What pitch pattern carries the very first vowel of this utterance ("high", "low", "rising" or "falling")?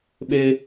high